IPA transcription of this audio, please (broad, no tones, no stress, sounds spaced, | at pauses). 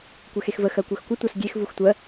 kʷ ɛ x e x v ə x ɜ kʷ ɜ x kʷ ə tʷ ɑ s ɡʲ e x v u x tʷ ɜ